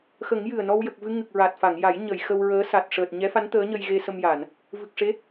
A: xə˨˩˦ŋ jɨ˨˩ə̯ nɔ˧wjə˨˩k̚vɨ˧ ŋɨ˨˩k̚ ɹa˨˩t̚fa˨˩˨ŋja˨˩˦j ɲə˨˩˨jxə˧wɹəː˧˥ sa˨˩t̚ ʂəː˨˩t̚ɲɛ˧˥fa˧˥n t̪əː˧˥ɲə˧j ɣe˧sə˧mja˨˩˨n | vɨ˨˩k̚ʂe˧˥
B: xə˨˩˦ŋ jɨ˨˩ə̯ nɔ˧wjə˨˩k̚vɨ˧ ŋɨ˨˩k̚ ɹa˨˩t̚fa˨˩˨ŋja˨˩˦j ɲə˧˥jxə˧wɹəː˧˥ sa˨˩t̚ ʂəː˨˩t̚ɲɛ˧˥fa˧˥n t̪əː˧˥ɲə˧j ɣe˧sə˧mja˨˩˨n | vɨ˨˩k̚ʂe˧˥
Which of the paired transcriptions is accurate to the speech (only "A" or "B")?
A